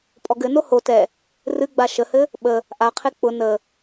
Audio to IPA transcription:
pʼɔɡɘno ho tɛ | rɨɡ͡ba ʃəhɘ | ɓə | ʔaqʰe k͡pʊ nə

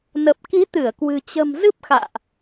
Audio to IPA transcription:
nə˨˩p̚ki˨˦ t̪ɨ˧˩ə̯kwɨ̤˨˩ t͡ɕə̤˨˩m zɨ˦˥p̚xa̰ː˧˨ʔ

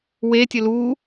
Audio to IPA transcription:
wetʲə lu

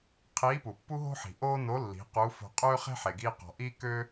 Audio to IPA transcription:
qʰiː˧˥pu˩pːu˥ɦo̤˥ ħi̤˩ʔoː˥no˧˥lːi̤˩˧ quː˧˥fo̤˧ qʼøː˥χe̤˥ħe˩ɡiː˧ qɔ̤˩ʔiː˥køː˥

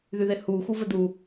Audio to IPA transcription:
ðyðɪhu xuvɘd̪u

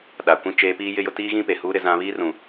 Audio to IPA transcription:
ɗa˨kʷĩ˦t͡ʃeː˦ piː˦jɪ˦jʊ˦ tiː˦ɣĩ˦pe˨huː˦ ɾɪ˦zã˦ βiː˦rũ˨

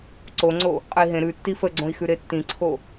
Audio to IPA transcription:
ǀoŋ͡ǀo | qʼəi̯ɦẽ ɾʉtːi fəɡ͡ǀõi̯xʉ ɾetːĩǀʰo

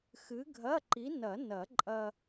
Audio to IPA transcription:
xɨ˨˥ɡʱɐ˧˥˧ǃi˨˥ nɐ˨˩˦ nɐ˨˩˦ǃʼɐ˧

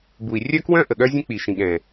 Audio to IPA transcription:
bu˨i̯ rʲœ˦kwœ̃˦ ʔə˨ɠœ˦zʲə̃˦ k͡pi˨ʃĩ˨ɠɛ̃˨

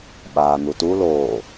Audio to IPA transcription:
ɓaːn̪utu loː

